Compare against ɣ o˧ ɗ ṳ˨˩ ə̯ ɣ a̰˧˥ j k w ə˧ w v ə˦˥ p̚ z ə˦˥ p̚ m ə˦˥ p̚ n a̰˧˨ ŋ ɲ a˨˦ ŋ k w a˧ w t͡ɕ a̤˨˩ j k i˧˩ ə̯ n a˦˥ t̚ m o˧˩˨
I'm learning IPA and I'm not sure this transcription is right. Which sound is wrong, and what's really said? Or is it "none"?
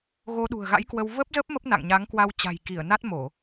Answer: none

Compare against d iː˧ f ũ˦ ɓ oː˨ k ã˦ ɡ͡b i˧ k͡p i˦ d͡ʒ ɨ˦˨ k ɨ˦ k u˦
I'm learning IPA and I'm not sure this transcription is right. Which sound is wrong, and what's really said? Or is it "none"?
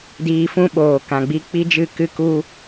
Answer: ã˦ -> ã˨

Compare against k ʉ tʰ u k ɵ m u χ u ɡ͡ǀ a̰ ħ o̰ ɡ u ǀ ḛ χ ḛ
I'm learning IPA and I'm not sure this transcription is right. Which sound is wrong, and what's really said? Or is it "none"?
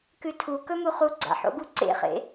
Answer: none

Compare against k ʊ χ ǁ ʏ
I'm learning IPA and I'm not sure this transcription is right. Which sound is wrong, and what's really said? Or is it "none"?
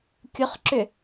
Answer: k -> kʲ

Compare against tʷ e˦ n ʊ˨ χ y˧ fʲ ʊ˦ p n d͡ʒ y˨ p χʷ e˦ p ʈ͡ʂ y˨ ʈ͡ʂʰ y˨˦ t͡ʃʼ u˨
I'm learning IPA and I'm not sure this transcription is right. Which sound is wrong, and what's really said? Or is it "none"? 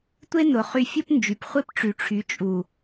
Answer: none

